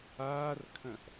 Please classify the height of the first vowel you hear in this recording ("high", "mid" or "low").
low